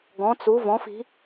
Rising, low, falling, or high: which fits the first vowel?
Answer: rising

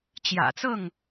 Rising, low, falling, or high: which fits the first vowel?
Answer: low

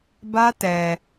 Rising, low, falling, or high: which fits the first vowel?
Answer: high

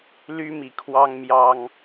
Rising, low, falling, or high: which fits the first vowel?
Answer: high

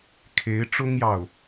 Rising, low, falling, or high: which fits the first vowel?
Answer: rising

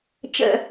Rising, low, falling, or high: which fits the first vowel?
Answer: falling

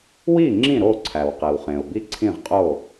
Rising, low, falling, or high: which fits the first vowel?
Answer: falling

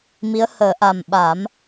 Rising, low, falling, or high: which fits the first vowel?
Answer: rising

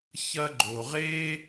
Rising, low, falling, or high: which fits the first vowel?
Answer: high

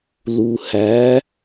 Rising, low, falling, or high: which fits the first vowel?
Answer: low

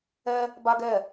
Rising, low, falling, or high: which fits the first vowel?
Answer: high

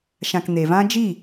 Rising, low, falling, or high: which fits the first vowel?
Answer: low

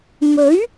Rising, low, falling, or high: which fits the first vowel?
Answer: rising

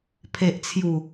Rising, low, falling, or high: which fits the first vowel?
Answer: low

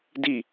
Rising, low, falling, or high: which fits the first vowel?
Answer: falling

